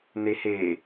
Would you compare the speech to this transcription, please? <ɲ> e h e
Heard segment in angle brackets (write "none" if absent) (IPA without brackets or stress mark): n